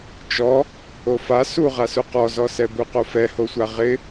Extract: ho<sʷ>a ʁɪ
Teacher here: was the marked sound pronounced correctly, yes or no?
yes